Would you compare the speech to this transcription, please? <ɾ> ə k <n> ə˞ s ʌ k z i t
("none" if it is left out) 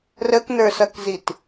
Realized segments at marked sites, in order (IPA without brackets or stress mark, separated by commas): r, n